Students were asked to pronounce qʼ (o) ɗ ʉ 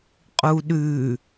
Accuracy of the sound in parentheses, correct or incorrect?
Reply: incorrect